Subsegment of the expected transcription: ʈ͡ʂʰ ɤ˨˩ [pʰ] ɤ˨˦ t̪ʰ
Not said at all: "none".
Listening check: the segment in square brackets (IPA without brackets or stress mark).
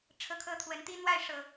kʰ